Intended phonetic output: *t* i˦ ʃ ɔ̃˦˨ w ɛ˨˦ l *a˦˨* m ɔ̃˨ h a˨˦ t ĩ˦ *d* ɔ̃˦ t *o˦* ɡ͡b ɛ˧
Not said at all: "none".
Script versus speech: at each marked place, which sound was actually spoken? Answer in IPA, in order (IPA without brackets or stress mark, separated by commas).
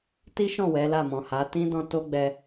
t, a˦˨, d, o˦